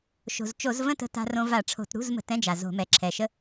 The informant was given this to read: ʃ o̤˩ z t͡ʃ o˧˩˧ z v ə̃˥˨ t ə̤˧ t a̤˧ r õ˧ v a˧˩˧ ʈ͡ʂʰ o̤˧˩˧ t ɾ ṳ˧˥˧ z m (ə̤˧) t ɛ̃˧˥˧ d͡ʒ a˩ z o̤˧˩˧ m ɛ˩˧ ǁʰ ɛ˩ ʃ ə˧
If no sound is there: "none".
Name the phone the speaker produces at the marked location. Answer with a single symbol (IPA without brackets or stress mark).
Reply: ə̤˧